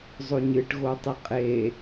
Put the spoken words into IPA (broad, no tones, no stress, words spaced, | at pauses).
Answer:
zˤoɲɨʈ ɣotˤɨqʼe